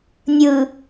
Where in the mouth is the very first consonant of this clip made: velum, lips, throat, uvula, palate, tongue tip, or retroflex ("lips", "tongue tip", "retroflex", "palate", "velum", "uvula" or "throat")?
tongue tip